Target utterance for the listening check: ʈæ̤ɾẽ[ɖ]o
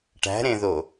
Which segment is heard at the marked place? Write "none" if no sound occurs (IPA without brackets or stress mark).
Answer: ð